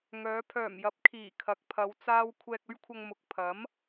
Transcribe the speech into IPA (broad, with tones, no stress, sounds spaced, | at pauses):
ŋ œː˨˧ pʰ œː˨˩ m j ɐ˨˥ p̚ kʰ iː˨˩ kʰ ɐ˨˥ k̚ pʰ ɐ˨˧ w t͡s aː˥ w kʷʰ ɛː˧ k̚ ɵ˥ ɥ kʷʰ ɐ˧ ŋ m ʊ˨ k̚ pʰ ɐ˨˥ m